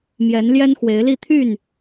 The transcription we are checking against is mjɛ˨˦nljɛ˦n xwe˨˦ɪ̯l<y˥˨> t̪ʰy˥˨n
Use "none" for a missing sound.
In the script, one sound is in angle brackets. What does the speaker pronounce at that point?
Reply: i˥˨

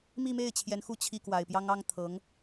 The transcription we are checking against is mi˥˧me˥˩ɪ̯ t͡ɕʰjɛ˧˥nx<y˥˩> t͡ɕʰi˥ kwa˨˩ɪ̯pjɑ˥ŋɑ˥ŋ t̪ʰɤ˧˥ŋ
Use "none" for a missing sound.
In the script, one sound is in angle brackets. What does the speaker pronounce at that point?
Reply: u˥˩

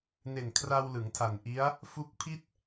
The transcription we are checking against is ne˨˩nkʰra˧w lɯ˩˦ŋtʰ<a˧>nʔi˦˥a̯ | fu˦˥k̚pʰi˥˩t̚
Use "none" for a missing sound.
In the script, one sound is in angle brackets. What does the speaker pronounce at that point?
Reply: a˨˩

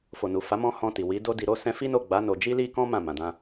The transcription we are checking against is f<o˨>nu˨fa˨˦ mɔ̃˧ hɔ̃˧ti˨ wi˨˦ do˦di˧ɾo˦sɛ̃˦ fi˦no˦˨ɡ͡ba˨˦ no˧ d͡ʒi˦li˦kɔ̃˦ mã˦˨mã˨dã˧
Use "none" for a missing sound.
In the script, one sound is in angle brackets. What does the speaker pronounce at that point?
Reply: o˨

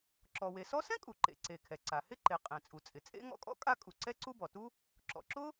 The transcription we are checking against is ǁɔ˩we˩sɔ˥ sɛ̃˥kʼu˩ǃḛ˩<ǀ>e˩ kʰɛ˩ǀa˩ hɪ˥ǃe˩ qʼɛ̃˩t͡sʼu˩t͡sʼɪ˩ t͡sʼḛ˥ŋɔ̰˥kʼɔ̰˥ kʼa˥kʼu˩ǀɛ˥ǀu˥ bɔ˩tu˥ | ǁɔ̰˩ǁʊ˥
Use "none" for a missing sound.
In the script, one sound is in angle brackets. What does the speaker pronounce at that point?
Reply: ǀ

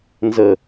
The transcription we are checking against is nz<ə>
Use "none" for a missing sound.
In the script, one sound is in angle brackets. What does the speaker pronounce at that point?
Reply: ə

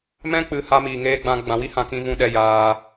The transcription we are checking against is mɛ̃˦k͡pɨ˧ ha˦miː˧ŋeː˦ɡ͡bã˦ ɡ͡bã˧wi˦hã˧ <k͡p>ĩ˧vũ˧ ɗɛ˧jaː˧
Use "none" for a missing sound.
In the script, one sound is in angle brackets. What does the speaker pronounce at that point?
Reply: k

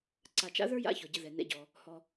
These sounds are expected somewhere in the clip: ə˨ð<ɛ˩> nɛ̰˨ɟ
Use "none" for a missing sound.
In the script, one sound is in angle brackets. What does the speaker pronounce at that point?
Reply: ɛ˩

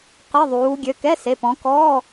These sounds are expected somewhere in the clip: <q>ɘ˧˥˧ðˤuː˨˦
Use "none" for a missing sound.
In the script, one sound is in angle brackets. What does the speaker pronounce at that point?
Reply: q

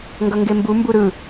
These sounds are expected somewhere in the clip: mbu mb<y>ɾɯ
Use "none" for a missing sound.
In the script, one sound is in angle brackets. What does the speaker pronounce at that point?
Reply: u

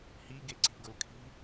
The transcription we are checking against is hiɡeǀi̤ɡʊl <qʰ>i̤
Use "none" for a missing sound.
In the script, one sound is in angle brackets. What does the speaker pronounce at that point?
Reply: kʰ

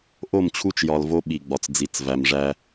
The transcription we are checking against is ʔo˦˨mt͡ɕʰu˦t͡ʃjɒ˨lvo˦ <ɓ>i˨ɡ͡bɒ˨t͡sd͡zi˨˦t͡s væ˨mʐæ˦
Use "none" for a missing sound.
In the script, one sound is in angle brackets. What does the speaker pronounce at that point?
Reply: ɓ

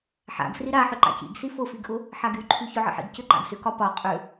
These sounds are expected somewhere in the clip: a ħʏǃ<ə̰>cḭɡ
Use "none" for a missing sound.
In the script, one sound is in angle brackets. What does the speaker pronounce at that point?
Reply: a̰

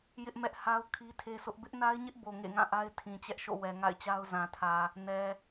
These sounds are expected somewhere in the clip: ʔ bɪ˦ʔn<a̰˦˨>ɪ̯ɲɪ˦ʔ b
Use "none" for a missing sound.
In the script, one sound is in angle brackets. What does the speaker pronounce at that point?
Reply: a˦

